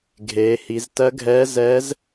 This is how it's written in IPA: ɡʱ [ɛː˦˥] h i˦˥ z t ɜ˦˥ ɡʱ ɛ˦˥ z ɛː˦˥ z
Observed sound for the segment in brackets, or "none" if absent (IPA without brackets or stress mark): eː˦˥